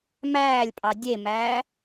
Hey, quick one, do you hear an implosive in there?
no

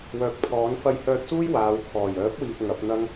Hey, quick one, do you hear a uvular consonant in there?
no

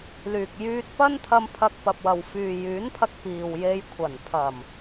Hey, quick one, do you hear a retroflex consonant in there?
no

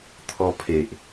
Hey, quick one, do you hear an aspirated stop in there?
yes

